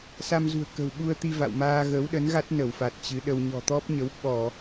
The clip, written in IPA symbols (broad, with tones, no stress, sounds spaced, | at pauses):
s a˧ m z ṳ˨˩ ə̯ k ə̤˨˩ w ɓ u˧ ə̯ t̪ i˧ v a̰˧˨ w m aː˧ ɣ ə˨˦ w ɗ ə˨˦ n ɣ a˦˥ t̚ n ə˧˩ w f a˨˩ t̚ t͡ɕ ɨ˨˦ ɗ ə˧ w ɲ ɔ̤˨˩ t̪ ɔ˦˥ p̚ ɲ ə˨˦ w ɓ ɔ˧˩˨